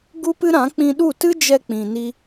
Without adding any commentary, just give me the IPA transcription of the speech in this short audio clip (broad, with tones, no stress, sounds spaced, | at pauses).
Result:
ɡ u˦ p ɨ˦ ɾ ã˨˦ k͡p ĩ˧ ɗ u˦˨ t ɨ˦ d͡ʒ ɛ˧ k͡p ĩ˨ n i˧